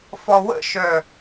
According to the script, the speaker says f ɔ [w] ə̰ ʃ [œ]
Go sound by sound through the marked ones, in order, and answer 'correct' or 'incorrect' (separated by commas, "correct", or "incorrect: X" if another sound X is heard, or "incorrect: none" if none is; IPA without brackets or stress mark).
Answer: correct, correct